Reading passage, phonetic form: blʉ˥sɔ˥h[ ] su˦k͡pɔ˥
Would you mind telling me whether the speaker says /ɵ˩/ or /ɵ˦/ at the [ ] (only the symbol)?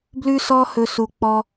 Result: ɵ˦